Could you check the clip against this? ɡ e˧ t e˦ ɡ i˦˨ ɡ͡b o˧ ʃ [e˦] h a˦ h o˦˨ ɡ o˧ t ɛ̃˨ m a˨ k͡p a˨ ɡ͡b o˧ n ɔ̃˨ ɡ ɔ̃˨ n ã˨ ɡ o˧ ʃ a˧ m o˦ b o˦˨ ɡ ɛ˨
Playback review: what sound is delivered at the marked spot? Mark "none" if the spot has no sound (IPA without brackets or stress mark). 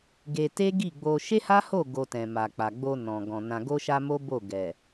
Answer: e˦